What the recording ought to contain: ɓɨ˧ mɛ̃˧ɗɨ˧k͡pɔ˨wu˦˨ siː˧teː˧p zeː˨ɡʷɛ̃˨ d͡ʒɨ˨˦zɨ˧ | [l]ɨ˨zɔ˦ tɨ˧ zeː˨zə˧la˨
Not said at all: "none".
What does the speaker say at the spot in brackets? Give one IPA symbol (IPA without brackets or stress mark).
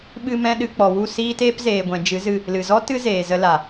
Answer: l